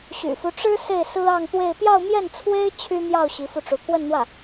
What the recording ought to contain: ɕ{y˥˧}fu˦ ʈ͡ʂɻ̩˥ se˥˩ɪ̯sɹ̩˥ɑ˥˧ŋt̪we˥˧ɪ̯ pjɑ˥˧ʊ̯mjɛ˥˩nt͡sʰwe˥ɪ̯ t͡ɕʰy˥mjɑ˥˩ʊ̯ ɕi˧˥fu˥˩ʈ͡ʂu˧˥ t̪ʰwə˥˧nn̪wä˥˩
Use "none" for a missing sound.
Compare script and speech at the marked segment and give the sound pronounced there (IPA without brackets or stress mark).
y̰˨˩